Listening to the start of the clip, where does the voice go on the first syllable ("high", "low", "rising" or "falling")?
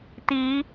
rising